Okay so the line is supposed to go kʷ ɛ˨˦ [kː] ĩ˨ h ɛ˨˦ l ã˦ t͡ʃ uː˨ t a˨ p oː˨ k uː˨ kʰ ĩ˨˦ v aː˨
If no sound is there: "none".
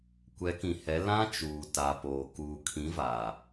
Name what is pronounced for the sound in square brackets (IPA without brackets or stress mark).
k